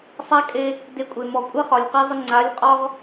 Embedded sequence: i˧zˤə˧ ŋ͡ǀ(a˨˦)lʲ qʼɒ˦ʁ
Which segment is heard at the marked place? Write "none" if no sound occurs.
a˨˦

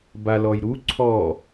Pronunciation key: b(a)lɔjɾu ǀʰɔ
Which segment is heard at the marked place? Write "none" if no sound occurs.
a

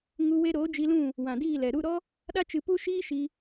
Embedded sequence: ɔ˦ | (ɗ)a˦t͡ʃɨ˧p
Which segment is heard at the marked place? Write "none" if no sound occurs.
ɗ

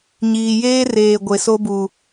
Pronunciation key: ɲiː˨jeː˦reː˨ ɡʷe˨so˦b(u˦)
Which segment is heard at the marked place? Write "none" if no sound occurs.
u˨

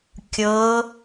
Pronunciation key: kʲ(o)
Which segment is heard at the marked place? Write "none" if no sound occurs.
ɤ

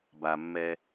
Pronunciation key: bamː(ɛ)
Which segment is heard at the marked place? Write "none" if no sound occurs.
ɛ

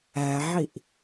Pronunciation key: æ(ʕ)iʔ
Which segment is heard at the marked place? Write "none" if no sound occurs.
ʕ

